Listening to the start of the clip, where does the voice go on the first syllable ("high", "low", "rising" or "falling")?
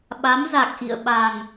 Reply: rising